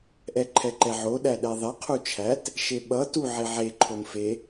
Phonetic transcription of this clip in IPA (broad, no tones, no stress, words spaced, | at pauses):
ʔɛǃʰɛǃɛʕo ɗæɗɛðˤe qʰut͡ʃʰæt | ʃeɓʌ tu ʕeʕe ǃʰomfe